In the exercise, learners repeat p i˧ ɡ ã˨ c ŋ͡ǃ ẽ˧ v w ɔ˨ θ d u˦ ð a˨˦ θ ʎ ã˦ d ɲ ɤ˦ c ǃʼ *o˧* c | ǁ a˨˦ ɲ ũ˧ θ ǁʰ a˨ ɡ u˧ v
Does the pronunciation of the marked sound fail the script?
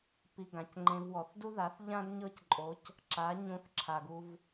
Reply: yes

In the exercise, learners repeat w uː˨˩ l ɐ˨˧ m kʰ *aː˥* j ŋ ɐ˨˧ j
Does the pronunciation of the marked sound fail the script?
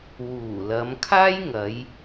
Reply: no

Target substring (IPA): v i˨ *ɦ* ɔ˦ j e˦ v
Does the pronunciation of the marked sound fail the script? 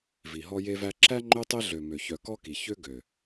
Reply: no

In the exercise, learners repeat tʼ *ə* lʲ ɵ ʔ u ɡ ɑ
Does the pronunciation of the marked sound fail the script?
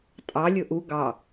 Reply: yes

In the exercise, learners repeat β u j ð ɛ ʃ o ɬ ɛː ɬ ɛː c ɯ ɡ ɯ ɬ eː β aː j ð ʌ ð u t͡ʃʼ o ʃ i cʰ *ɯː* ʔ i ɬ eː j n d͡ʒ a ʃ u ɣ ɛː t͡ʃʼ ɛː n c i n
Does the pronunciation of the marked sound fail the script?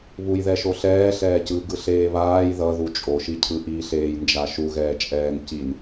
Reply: yes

